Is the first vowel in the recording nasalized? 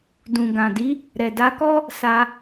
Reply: yes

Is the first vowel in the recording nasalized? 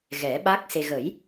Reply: no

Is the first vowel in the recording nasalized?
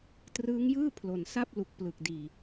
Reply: no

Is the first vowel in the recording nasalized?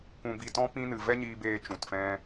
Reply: yes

